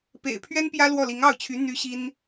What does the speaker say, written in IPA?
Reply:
p ḛ˨˩ ɪ̯ pʰ ɥ ɛ˥ n p j ä˥ l w ɔ˥˩ l i˧˥ ŋ ɑ˥˩ ʊ̯ t͡ɕʰ y˧˥ n̪ y˧˥ ɕ i˥ n

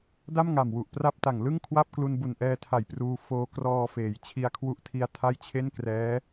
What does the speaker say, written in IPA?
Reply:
d a˥˩ m ŋ a˨˩ m w u˨˩ ʔ p r a˥˩ p̚ t a˨˩ ŋ l ɯ˥˩ ŋ kʰ w a˥˩ p̚ k l u˧ n b u˨˩ n ʔ ɛː˧ tʰ a˨˩ j p r uː˧ f oː˧ k r ɔː˧ f eː˩˦ j t͡ɕʰ i˧ a̯ kʰ w u˦˥ ʔ tʰ i˧ a̯ tʰ a˥˩ j t͡ɕʰ e˥˩ n k r ɛː˦˥

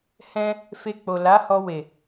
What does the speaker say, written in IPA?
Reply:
h ɛ̃˧ | f e˧ k͡p o˨ l a˨˦ h ɔ˧ w e˨

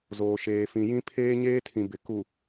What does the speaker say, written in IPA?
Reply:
z oː˨ ʃ eː˨ f ĩ˨ j ĩ˦ pʰ eː˦ ɲ eː˦ tʰ ĩ˨ b ɪ˨ k u˨

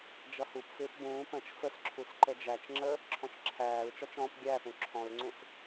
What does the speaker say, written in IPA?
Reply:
d͡ʒ ʌ h u p f ɪː p b ũː p ə̃ t͡ʃ f ə s ǁʰ u s ǃ ə d͡ʒ æ t͡ʃ ŋ͡ǁ ə | ǁʰ ɔ̃ t͡ʃ ǁʰ æː ɹ t͡ʃ ɔ t͡ʃ ɔ̃ p ɡʲ æ θ ũ ǁʰ ɔ̃ ɹ ŋ͡ǀ ũ s

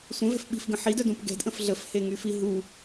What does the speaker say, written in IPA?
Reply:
sʷ ə̃ v ɛ̤ f ɓ i̤ f ɡ ə̃ ħ i d œ d ũ p ɡ ɛ̤ d ʔ ə̃ f ɮ ə f h e ŋ y f i ɦ u

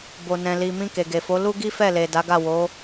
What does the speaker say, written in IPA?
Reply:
b o˨ n ɛ̃˨ l i˨ m ĩ˧ k e˨ ɡ e˨ f o˨˦ l u˦ ɡ i˦ f ɛ˦˨ l e˨ d a˨˦ ɡ a˦˨ w o˨˦

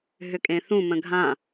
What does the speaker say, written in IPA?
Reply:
ɦ ʏ kʼ ẽ θ ũ m ə̃ ɡʱ ã

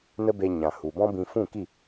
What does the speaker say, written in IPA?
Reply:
n ə˦ b e˧ ɲ ã˨ h u˨ b ɔ̃˦ b ĩ˧ f ũ˦˨ k i˦˨

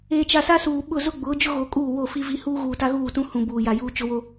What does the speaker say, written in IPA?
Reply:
eː˨ t͡ʃ a˨ s a˦ s uː˨ ɓ ʊ˦˨ z ʊ˦ ɡ͡b ʊ˨˦ d͡ʒ ʊ˦ ɣ o˨ kʼ uː˦˨ w o˦˨ f i˦ v i˦ h uː˦ ɣ uː˨ t a˦ ɣ uː˦˨ t ũ˦ h ũ˨ b uː˨ j a˨ j uː˦ t͡ʃ ʊ˦ w o˦

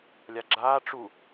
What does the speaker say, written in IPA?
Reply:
lʲ a ɡ͡ǁ aː ʈ͡ʂ u

